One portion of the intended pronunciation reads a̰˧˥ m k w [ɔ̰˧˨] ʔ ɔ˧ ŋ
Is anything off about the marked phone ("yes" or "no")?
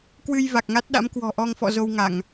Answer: yes